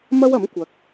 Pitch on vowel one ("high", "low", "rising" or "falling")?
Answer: high